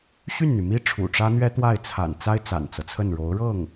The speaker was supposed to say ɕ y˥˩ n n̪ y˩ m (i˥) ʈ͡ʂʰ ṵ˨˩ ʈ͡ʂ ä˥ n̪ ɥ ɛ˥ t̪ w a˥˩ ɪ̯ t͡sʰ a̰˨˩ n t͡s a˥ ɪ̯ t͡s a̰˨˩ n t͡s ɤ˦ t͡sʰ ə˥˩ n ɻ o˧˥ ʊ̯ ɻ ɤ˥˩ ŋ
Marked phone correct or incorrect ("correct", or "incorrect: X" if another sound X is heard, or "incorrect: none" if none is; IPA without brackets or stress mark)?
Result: correct